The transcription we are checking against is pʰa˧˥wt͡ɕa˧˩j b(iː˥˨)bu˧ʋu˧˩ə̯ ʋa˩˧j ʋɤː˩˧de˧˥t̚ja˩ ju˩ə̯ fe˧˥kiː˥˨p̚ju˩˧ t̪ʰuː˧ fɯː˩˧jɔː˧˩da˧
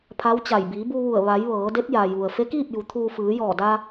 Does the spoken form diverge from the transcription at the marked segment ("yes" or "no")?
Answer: yes